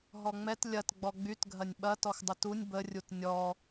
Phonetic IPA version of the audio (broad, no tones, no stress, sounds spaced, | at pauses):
ɦ ɔ ŋ͡m ɛ t lʲ ɐ t ɡ͡b ɔ ɡ͡b y t ɡʱ ɐ nʲ ɓ ɐ t ɔ x dˤ ʊ t u nʲ b ə rʲ u t nʲ ɔ